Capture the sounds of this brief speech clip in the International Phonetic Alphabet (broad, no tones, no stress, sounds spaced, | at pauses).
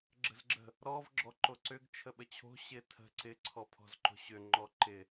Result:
ɡ͡ǁ ə̤ z ɡ͡ǁ ə̤ | ɾ ɔ v ɡ͡ǁ ɔ ǃ o ǀ ʏ ɡ t͡ʃʰ ə ɓ ə t͡ɕʰ o̤ ɕ ɪ tʰ ə̤ ǀ ɪ ǀʰ ɔ pʰ ɔ̤ z ǃ o̤ ɕ ʏ ŋ͡ǃ ɔ ǃ ɪ